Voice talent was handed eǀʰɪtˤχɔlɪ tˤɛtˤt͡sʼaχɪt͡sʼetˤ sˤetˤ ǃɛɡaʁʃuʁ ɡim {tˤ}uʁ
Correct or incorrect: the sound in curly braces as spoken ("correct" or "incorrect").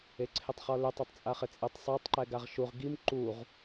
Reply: incorrect